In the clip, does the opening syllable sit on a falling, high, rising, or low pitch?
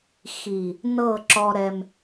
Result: low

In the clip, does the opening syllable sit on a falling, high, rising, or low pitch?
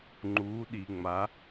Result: rising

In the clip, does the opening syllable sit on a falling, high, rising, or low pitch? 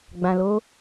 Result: low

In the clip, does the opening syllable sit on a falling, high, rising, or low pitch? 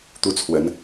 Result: falling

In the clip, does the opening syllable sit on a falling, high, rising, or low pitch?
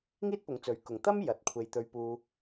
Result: high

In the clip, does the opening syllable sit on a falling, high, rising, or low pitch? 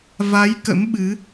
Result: rising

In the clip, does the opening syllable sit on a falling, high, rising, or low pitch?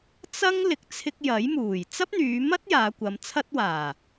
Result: high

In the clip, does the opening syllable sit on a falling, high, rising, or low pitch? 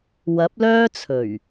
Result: rising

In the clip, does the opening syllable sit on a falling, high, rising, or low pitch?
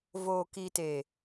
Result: low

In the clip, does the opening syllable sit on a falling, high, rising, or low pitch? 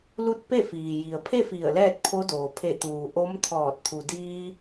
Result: falling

